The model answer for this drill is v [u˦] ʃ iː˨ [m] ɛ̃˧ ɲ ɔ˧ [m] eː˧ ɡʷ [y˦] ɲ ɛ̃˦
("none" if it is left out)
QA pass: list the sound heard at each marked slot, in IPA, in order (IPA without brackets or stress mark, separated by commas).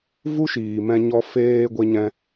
u˦, m, f, e˦